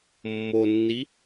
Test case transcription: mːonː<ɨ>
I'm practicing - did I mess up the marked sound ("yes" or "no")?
yes